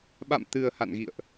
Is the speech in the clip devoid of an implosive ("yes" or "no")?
no